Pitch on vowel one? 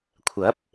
rising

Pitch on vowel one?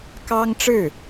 high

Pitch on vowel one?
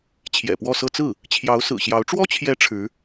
low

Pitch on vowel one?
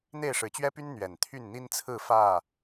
falling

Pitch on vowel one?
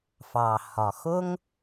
low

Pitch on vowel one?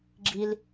high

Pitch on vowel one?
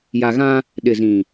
low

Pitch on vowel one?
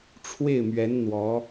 falling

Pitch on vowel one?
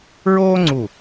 high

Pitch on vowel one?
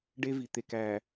high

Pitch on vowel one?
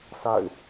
falling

